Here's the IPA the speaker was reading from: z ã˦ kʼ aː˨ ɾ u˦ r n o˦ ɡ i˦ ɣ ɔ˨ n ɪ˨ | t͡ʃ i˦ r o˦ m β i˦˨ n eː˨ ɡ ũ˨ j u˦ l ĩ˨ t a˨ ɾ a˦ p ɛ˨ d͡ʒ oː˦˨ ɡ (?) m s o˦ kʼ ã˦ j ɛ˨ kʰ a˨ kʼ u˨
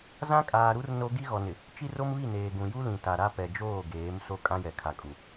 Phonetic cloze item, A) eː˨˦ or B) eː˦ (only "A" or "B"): A